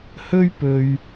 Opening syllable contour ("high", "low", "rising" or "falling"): high